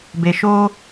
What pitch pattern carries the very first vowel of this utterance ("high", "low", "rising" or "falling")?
low